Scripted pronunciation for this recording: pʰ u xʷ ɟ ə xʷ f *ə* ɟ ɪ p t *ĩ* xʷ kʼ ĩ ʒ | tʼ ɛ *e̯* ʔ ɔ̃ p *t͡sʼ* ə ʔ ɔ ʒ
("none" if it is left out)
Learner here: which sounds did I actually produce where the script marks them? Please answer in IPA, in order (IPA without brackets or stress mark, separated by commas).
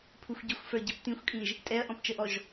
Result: ə˞, ĩ, ɐ̯, t͡ʃ